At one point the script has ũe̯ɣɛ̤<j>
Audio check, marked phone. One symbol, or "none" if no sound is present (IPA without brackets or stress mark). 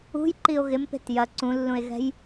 j